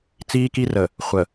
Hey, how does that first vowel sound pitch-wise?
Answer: high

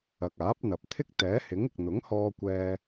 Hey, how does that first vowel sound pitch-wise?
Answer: low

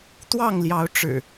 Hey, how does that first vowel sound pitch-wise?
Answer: falling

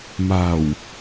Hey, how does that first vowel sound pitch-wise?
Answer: low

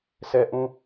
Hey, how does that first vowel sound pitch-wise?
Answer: high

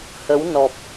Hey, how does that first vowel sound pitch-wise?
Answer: rising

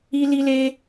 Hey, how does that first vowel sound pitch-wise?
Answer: high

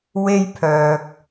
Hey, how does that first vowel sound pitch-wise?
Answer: high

